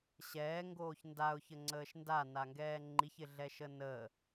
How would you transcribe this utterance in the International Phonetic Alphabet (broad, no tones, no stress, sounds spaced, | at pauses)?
ɕ ɛː ŋ ɡ oː ç n d a ʊ̯ ç ə ŋ͡ǀ əː ʃ n d a n a ŋ ɡ ɛː ŋ͡ǃ i ç ɪ ɮ ɛ ʃ ə n ə